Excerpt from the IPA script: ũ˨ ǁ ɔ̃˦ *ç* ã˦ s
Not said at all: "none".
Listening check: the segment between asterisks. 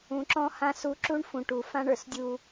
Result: h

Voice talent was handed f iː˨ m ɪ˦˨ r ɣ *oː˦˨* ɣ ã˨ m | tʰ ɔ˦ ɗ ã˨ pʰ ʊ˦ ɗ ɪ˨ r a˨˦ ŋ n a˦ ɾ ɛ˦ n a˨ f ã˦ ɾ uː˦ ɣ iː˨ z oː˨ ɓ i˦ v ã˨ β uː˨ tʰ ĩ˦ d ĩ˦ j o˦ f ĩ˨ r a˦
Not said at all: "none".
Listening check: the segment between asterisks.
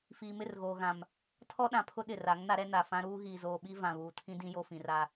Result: oː˨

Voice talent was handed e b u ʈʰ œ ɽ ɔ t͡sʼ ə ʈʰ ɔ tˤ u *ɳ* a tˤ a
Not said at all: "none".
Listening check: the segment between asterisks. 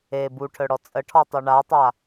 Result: ɳ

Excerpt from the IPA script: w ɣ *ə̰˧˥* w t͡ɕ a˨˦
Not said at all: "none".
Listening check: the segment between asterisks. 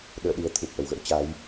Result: ə̰˧˥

